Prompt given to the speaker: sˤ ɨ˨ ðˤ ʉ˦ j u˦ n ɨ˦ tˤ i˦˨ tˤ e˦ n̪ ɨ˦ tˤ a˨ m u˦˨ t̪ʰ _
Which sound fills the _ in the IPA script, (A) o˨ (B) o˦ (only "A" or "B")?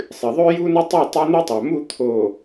A